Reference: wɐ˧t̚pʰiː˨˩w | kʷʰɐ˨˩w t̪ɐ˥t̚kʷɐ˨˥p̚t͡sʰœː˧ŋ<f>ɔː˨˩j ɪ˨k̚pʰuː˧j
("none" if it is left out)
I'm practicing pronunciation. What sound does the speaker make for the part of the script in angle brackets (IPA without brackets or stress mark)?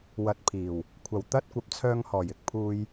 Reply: h